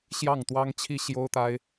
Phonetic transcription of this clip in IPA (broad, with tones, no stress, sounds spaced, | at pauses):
ɕ j ɑ˥˩ ŋ t̪ w ɑ˥ ŋ t͡ɕʰ i˥ ɕ j o˥ ʊ̯ t̪ a˥ ɪ̯